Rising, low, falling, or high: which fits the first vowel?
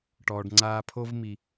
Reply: low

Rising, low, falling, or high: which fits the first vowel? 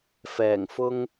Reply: low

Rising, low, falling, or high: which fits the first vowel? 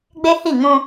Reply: high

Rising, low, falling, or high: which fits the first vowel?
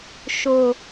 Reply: low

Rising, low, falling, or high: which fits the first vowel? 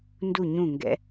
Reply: falling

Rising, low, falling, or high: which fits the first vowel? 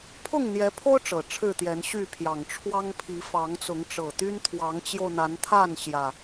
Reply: falling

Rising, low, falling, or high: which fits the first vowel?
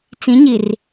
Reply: rising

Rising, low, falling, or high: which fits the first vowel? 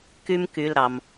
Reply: high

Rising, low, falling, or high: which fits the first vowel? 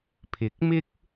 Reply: rising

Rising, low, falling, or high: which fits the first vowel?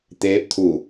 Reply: rising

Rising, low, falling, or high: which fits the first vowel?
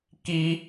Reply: high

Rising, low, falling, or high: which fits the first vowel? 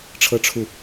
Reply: falling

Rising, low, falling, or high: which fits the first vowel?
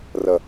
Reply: low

